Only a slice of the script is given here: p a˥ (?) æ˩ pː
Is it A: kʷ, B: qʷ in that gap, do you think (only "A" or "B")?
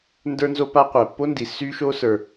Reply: B